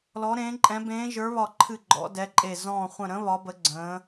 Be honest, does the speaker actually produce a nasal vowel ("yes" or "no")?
yes